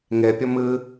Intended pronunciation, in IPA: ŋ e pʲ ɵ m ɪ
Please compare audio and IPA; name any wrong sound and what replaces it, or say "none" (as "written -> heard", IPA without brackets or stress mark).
ɪ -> ɨ